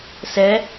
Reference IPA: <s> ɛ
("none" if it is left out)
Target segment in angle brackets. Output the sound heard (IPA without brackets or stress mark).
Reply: s